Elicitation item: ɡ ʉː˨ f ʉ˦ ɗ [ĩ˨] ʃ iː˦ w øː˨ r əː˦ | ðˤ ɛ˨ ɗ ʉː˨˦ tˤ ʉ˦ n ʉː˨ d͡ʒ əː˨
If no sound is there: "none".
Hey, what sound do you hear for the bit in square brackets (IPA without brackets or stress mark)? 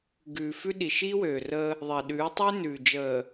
i˨